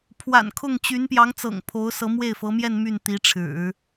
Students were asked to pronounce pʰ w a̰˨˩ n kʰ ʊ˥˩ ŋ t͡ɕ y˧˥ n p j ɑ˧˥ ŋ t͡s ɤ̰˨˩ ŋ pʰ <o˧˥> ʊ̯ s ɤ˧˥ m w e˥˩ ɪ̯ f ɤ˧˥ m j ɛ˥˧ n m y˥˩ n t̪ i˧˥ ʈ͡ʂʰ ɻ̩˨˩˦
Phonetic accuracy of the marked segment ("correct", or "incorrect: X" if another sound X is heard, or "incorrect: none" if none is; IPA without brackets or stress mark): correct